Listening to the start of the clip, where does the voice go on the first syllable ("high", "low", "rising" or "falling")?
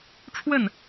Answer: falling